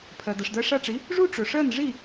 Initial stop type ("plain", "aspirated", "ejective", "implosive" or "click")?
aspirated